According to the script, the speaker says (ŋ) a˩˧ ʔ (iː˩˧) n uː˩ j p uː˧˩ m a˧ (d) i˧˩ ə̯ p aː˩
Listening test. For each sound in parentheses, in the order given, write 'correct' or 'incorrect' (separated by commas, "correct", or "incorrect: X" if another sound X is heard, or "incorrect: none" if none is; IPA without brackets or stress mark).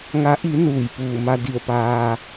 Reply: correct, incorrect: i˩˧, correct